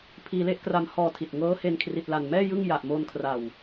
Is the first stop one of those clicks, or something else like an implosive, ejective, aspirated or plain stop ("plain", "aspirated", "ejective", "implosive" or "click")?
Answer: aspirated